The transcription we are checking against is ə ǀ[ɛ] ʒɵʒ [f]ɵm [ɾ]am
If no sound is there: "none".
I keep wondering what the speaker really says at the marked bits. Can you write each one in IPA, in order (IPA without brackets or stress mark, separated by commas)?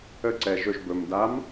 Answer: ɛ, b, d